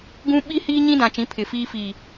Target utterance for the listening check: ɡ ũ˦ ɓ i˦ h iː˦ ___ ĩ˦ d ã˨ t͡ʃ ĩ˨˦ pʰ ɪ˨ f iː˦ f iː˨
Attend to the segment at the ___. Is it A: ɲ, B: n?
A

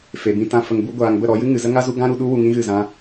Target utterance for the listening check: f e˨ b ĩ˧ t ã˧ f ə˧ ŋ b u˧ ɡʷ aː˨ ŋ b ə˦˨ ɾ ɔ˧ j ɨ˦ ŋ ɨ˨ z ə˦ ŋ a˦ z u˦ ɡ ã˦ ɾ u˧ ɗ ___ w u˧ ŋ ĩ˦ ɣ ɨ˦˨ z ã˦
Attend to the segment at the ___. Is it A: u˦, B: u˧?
A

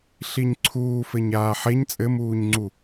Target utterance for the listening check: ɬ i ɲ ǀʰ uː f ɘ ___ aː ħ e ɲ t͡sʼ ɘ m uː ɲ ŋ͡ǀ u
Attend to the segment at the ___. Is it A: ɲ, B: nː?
A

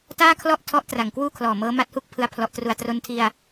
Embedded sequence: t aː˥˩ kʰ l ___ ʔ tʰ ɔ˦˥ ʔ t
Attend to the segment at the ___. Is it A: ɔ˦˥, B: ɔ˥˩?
B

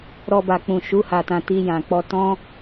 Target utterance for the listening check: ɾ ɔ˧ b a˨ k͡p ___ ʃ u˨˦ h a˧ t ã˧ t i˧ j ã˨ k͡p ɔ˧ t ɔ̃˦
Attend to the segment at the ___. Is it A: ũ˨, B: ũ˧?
A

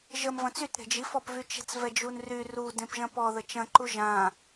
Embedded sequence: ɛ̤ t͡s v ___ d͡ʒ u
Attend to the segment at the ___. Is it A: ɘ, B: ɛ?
B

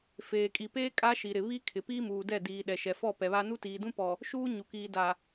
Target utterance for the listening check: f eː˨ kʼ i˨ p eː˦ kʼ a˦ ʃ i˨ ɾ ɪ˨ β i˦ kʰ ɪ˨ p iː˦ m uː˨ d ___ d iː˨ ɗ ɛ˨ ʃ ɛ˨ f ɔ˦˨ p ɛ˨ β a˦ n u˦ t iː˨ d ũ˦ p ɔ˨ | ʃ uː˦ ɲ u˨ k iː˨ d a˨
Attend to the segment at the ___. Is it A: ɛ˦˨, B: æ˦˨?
A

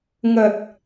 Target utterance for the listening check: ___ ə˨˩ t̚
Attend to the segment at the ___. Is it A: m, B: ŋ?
B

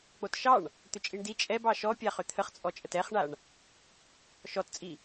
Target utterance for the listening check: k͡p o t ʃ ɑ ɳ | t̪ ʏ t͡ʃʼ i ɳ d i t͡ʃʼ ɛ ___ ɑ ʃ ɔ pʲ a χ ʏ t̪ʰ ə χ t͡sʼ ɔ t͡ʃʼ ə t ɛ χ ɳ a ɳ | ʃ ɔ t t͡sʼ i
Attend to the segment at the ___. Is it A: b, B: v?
A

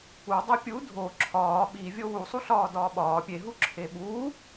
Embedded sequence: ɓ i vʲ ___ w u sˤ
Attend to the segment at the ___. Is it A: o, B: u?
A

